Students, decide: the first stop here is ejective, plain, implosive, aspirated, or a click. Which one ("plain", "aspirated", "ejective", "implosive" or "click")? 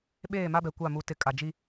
implosive